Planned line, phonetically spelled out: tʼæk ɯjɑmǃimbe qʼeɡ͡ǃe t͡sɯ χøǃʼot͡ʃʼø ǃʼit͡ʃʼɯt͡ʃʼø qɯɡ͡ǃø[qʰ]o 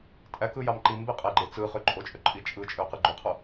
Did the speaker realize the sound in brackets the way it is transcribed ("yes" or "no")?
yes